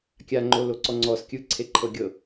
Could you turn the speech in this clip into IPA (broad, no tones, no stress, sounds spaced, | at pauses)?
kʲ a ŋ͡ǃ o l o ǀ ɔ ŋ͡ǀ ɔ s kʲ ɯ ǀʰ e ǃʰ ɤ ɡʲ ɤ